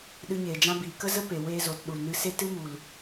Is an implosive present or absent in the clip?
present